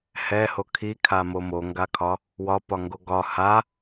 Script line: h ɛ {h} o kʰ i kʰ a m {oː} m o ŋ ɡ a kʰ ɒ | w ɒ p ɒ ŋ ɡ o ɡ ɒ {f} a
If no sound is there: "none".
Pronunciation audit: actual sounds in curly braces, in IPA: h, o, h

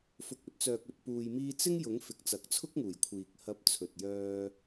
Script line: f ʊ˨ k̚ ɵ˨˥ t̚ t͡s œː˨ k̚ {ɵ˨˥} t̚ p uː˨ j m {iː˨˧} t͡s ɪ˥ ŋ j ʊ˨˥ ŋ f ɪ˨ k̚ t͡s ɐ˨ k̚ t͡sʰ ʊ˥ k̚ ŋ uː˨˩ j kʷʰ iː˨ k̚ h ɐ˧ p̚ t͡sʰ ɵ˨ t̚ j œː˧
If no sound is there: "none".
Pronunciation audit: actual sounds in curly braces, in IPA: ɵ˨, iː˧

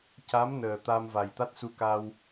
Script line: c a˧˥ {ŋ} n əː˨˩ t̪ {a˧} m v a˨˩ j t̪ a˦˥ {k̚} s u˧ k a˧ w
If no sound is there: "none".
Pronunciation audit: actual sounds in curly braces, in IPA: m, a˧, t̚

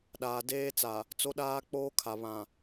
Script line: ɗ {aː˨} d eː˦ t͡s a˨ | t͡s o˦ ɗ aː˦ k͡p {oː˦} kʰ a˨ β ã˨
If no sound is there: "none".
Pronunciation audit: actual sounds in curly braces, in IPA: aː˨, oː˦

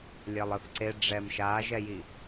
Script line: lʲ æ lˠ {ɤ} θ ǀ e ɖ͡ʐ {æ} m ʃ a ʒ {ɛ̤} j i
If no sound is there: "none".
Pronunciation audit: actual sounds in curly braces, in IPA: ɤ, ɛ, ɛ

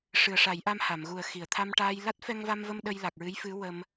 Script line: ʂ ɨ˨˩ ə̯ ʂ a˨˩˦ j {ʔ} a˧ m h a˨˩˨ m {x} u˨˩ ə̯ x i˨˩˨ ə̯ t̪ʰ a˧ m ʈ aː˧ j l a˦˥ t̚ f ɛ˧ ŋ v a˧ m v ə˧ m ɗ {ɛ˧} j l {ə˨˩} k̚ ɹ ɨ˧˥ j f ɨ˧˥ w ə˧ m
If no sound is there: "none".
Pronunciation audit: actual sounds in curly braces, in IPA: ʔ, ɣ, ə˧, a˨˩

